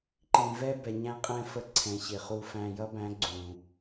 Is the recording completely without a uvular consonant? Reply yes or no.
no